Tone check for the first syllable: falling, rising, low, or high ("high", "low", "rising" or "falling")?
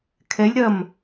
rising